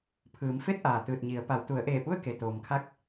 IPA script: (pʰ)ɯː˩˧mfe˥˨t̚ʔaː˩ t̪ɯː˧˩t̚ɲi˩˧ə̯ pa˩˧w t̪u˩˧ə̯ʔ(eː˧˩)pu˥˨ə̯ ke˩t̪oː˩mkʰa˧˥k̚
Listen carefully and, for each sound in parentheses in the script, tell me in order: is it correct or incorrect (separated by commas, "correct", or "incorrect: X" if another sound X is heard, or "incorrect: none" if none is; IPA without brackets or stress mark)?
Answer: correct, correct